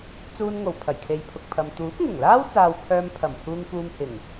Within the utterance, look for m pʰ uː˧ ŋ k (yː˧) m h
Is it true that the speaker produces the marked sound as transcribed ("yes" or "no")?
no